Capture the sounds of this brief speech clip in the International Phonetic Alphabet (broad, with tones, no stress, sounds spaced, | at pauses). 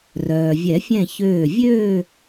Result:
r œː˩ vʲ ɛ˨˩˦ fʲ ɛ̃˧˩ ç øː˧˩ vʲ øː˥˧